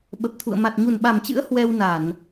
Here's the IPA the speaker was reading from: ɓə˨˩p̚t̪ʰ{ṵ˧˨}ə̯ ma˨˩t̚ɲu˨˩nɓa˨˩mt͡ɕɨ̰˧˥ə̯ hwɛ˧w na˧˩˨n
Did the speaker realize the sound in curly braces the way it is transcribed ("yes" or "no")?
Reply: yes